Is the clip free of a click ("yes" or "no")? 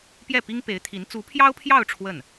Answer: yes